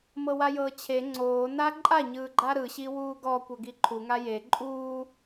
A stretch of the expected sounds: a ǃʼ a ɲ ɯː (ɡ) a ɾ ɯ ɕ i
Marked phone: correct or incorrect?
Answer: incorrect